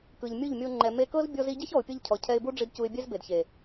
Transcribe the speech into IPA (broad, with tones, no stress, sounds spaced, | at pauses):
k ɯ˨ ʎ mʲ u˦˨ ʎ mʲ o˧ ŋ͡ǃ ɛ˨ m e˧ k ɤ˦ z bʲ ɔ˦ z i˦ ɟ ɛ˦ ç ɔ˨ ʊ̯ pʲ ɤ˧ ʎ cʰ ɔ˨ cʰ ɛ˧ ɪ̯ b u˦ ɖ͡ʐ i˧ d c u˧ ɪ̯ bʲ ɛ˦ z b e˨ d ç e˨